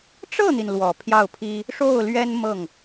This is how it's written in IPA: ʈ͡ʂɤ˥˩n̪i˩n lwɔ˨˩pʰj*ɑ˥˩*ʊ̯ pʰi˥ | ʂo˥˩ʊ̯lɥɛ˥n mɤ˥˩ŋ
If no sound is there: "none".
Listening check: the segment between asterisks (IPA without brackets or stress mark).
ɑ˥˩